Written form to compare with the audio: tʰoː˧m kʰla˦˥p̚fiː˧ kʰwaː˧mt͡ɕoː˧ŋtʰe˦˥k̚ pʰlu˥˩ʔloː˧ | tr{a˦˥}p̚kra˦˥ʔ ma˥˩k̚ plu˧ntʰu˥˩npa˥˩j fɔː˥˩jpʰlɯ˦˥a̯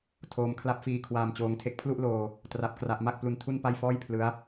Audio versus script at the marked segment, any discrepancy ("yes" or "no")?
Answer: no